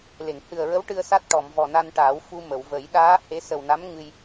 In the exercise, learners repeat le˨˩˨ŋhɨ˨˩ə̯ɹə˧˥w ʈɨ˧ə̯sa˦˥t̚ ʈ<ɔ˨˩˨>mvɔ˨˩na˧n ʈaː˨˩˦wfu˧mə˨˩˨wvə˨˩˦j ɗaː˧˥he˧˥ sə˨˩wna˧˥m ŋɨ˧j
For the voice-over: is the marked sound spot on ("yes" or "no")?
yes